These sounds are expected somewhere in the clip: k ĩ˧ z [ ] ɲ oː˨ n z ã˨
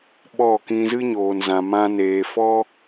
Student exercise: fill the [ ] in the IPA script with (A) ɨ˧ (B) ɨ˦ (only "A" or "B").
B